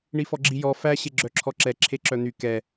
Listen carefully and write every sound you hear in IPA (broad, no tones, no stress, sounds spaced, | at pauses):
ɳ i f ɔ ɡ͡ǁ i j ɔ f æ ɕ e ɡ͡ǁ œ ǁʰ ɔ ǁ ɛ ǁʰ e ǁ œ n̪ y k ɛ